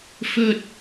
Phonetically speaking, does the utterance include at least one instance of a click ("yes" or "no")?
no